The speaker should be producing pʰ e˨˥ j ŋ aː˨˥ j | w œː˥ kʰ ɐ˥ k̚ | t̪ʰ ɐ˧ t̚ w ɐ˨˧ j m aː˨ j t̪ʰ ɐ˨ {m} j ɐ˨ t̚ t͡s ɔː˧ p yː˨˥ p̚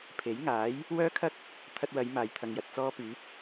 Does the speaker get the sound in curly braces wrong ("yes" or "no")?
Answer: yes